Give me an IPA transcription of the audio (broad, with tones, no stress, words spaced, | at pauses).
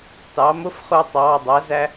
tɑ˩˥ mʊ˧˥˧fχʊː˧ tˤɑː˩˧˩dˤæ˩˥zæ˧